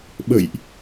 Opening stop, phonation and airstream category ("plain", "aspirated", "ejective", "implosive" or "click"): implosive